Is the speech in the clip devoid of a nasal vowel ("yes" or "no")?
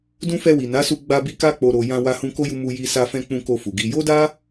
no